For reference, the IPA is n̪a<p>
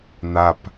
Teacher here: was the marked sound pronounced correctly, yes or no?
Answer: yes